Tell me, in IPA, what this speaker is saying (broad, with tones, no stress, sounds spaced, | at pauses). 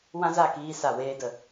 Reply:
w ã˦ z a˦˨ k iː˧ s a˨ w eː˧ d ə˨